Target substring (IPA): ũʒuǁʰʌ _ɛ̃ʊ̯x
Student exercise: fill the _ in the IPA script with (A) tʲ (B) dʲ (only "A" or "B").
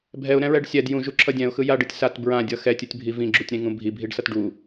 B